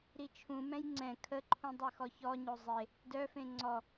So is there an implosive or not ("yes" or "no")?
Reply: no